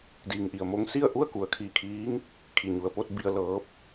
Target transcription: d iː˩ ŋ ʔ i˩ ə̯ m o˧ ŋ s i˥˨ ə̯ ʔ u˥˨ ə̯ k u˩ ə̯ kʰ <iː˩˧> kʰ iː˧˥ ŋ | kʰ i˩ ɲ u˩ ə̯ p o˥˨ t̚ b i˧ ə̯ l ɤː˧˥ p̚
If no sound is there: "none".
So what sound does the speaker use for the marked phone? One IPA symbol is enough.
iː˧˩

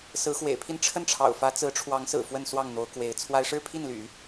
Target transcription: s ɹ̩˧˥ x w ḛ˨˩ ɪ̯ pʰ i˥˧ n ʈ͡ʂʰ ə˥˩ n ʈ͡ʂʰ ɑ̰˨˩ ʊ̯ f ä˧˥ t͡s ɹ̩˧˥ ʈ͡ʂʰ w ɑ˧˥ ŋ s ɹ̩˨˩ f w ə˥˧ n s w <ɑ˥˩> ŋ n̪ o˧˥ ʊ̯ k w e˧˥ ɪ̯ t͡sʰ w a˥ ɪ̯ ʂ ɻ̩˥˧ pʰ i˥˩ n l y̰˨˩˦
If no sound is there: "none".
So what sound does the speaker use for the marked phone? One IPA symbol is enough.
ɑ˥˩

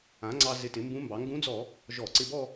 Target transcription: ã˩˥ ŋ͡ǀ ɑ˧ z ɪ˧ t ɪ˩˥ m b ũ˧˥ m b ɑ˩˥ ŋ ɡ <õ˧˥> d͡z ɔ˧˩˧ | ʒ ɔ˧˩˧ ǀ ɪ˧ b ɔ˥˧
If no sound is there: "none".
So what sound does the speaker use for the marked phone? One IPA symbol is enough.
ũ˧˥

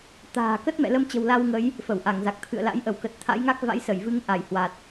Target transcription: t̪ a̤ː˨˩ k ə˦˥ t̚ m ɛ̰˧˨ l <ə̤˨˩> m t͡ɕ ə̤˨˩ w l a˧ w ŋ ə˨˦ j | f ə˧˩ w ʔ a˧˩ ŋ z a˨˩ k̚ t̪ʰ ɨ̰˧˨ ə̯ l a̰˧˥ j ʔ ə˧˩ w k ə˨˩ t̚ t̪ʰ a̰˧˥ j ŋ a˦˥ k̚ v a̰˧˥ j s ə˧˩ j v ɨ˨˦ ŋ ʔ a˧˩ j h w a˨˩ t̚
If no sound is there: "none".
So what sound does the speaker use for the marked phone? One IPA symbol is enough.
ə˧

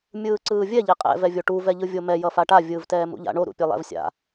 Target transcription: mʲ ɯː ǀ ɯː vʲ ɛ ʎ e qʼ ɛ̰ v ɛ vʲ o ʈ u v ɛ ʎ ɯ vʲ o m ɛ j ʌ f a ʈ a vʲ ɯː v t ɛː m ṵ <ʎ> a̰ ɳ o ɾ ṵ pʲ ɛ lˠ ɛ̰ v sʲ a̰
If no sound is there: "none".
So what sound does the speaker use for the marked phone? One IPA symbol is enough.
ʎ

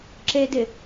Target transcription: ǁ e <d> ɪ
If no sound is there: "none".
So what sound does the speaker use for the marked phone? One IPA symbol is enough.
d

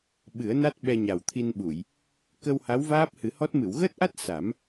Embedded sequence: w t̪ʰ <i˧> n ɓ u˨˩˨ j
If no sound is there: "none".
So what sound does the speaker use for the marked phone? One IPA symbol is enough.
i˧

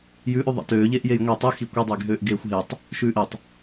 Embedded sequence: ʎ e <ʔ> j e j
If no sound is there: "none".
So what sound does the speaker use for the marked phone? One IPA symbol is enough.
ʔ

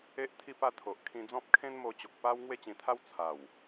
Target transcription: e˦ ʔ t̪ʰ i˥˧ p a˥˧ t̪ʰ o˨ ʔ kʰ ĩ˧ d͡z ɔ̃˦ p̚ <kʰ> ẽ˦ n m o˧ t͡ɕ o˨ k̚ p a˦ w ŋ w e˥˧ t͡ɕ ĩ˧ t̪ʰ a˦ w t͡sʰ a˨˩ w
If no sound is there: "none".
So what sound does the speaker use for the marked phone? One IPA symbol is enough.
kʰ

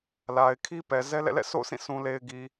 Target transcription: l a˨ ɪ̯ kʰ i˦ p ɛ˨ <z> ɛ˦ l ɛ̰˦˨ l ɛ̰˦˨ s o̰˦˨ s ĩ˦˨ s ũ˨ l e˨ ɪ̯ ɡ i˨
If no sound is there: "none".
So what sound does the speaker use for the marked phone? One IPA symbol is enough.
z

